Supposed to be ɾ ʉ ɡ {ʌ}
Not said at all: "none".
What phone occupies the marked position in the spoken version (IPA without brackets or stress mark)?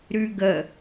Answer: ə